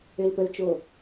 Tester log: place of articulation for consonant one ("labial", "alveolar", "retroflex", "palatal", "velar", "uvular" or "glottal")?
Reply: alveolar